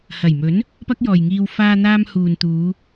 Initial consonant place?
glottal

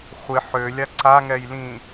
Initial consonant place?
uvular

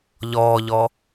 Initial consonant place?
palatal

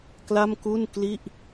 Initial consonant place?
velar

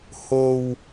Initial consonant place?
glottal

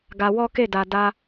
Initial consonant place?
velar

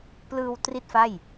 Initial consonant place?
labial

